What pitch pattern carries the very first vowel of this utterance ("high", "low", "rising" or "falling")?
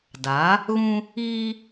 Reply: rising